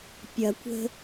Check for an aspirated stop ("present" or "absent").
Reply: absent